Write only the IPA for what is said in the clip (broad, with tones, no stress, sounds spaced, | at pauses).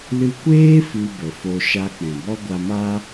l ɨ˧ kʷ eː˦ f ɨ˧ b ə˨ f o˧ ʃ a˧ k͡p ɛ̃˨ b ɔ˦ ɡʷ a˧ m a˦